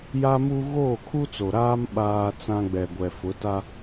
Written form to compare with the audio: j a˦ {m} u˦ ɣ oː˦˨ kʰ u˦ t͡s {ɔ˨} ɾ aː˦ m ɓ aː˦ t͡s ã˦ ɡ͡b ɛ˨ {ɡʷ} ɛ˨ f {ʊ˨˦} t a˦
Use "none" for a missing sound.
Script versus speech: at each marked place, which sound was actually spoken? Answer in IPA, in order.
m, o˨, ɡʷ, ʊ˨˦

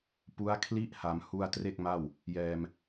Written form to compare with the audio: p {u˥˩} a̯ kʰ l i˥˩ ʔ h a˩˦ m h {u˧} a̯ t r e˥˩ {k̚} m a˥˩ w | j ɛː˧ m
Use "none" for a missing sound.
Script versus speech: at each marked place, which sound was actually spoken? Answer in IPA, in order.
u˦˥, u˧, k̚

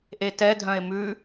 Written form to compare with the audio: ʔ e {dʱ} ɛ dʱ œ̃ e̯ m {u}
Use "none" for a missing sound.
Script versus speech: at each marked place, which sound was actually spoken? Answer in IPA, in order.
t, ʉ

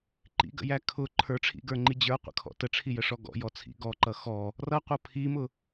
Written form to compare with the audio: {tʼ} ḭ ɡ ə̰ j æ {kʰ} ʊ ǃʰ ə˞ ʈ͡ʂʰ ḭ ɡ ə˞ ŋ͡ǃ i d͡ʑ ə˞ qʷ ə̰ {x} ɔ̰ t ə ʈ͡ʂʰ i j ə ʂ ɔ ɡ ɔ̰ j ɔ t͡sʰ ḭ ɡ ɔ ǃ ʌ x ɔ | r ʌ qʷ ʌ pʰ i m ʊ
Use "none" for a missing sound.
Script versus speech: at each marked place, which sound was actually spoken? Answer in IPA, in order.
ǃ, kʰ, kʰ

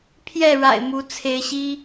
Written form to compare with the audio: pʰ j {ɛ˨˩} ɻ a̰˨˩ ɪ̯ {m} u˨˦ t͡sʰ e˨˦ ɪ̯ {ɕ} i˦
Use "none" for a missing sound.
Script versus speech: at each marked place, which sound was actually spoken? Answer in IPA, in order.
ɛ˥˨, m, ɕ

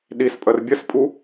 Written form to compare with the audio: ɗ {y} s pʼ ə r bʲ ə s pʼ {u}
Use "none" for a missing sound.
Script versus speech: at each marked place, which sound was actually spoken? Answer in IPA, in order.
i, u

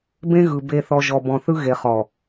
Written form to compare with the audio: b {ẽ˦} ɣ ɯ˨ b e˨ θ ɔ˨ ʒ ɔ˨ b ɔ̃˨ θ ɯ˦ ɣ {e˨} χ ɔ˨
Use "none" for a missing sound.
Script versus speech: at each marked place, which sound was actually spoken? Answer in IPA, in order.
ẽ˦, e˨

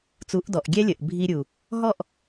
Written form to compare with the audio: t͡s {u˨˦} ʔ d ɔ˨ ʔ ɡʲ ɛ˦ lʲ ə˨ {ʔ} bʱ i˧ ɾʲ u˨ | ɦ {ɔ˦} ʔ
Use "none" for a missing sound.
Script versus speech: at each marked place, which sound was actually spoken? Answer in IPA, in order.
u˨˦, ʔ, ɔ˦˨

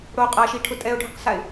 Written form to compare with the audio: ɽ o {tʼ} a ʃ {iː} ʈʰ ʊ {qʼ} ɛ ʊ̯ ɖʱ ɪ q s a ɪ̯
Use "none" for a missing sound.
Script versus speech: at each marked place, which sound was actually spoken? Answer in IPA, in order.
qʼ, i, tʼ

